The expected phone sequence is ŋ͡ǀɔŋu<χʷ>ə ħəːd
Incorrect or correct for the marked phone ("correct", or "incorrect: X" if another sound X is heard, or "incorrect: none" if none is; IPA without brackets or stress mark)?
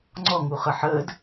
incorrect: χ